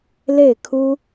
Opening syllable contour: falling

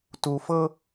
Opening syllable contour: low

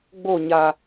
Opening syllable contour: falling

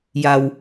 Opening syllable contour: low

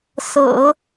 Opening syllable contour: low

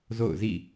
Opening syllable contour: falling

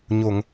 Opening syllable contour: low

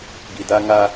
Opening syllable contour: low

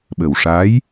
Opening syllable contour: low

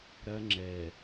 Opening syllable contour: high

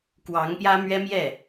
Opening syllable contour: rising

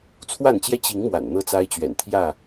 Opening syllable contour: falling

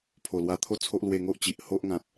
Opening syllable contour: low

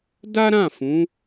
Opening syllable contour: high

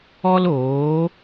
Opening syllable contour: high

